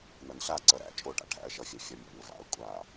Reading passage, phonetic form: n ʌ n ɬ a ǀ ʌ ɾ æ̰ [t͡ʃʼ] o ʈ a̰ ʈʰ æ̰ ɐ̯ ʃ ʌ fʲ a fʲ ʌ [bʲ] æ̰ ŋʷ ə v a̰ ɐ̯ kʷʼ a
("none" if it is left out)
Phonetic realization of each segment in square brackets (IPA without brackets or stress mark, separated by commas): t͡ʃʼ, mʲ